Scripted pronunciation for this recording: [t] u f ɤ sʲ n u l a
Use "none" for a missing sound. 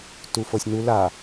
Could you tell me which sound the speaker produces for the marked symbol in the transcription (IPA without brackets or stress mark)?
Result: t